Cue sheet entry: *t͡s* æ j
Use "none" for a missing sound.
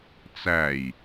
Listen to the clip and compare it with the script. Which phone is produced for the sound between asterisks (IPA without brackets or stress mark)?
t͡s